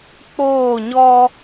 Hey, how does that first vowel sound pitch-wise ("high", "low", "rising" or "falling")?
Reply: falling